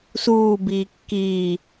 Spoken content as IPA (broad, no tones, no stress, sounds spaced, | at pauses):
s uː b iː kː iː